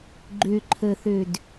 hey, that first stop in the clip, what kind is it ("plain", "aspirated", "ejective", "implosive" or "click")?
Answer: click